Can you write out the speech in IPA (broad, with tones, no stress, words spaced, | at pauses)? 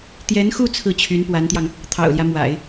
t̪jɛ˧˥nxu˥˧ t͡sʰɹ̩˥˩t͡ɕʰy˧˥npwa˧˥nt̪jɑ˧ŋ | t̪ʰɑ̰˨˩ʊ̯ljä˦mwa̰˨˩˦ɪ̯